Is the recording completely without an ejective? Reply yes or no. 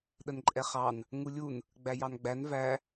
no